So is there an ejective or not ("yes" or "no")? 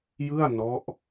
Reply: no